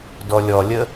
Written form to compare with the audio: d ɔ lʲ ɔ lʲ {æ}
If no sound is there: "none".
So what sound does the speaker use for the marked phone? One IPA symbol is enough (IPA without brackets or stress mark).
ə